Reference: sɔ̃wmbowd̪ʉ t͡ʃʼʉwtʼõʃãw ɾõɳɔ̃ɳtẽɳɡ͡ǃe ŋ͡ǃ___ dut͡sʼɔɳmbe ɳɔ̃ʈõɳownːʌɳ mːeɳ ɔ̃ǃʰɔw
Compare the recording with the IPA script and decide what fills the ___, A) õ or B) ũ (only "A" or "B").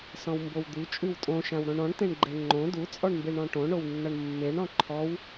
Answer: A